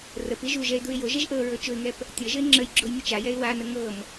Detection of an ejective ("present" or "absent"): absent